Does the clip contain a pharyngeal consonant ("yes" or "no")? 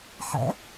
yes